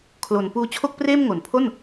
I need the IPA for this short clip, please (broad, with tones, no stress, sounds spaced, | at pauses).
kʰ l o˨˩ n p uː˦˥ t͡ɕʰ o˥˩ k̚ p r eː˥˩ m ŋ o˩˦ n pʰ o˥˩ n